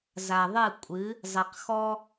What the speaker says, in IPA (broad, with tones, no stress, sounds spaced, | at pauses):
z a˨ ðˤ ɨ˦˨ kʷʼ ɨ˨˦ | zˤ ɪ˨ q x ɔ˦